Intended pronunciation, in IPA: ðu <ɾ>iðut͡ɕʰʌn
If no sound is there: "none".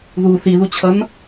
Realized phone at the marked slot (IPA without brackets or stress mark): θ